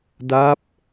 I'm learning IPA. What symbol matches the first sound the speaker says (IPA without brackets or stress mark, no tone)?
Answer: d